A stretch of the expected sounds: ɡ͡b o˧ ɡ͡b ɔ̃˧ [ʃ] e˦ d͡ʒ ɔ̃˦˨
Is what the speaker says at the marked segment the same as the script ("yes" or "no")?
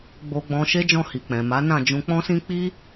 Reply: yes